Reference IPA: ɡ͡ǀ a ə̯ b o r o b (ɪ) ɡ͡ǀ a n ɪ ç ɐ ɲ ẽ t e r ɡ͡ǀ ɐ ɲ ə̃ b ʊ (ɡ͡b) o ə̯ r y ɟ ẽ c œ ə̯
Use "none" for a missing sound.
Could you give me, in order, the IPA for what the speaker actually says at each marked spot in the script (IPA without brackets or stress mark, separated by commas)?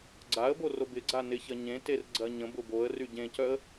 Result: ɪ, b